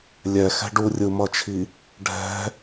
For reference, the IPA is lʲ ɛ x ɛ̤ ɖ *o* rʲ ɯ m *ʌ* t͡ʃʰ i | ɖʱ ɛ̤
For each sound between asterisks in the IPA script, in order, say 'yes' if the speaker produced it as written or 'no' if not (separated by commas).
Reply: no, yes